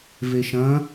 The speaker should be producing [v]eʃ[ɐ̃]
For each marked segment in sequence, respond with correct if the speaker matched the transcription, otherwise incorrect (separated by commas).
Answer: correct, correct